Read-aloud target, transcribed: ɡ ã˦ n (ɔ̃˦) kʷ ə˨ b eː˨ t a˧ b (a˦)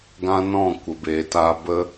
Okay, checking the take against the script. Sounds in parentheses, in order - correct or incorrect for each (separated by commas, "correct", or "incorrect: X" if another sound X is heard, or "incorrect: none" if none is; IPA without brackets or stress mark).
incorrect: ɔ̃˦˨, incorrect: ə˦